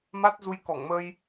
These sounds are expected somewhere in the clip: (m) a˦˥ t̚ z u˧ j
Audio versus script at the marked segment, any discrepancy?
no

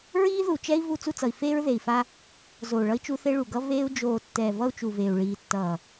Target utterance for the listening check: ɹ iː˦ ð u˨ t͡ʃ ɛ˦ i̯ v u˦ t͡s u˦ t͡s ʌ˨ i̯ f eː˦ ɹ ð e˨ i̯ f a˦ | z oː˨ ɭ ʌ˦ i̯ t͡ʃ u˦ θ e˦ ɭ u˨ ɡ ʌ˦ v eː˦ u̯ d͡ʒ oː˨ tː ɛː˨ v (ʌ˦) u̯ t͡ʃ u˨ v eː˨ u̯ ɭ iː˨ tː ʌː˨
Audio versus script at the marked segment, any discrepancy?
no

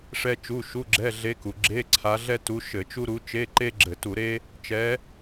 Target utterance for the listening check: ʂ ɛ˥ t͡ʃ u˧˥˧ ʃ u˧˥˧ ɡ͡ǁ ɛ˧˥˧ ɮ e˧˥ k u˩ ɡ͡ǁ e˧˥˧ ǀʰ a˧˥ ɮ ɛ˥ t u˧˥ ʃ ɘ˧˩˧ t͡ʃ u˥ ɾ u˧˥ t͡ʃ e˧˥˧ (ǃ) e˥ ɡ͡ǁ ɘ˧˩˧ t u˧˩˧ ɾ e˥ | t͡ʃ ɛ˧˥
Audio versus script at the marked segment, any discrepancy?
no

